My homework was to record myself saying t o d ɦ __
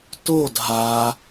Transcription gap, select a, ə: a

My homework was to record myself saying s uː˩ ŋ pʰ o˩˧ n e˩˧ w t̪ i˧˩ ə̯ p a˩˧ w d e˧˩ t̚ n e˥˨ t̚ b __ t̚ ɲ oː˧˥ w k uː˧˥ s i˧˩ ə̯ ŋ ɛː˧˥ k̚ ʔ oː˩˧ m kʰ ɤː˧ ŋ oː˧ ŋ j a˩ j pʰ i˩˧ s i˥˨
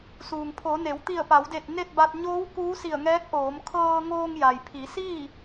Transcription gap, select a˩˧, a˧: a˧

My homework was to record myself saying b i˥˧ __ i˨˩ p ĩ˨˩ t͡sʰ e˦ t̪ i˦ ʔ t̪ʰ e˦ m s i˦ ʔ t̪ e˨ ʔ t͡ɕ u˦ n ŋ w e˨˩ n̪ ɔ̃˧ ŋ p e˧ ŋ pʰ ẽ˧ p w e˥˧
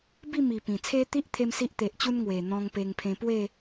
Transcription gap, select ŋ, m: m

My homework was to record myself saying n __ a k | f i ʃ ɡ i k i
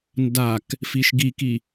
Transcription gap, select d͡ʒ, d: d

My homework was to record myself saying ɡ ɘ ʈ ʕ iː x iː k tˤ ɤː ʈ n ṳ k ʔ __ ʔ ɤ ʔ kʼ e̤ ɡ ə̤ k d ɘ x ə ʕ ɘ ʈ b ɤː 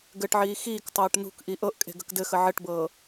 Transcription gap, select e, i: i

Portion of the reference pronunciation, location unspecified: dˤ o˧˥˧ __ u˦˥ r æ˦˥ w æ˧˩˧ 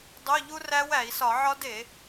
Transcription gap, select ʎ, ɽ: ʎ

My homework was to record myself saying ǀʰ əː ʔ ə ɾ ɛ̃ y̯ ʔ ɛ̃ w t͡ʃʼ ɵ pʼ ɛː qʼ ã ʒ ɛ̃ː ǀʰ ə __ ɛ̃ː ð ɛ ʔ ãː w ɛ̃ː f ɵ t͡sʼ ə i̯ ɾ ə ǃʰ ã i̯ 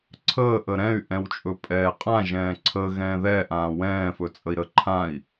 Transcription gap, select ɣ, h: ɣ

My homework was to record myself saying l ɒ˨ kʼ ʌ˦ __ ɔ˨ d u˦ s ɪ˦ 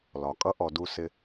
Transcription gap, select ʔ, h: ʔ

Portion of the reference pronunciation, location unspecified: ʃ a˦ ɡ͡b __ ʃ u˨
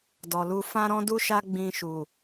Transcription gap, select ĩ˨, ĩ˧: ĩ˧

